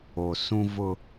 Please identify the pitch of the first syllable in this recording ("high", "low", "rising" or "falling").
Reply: low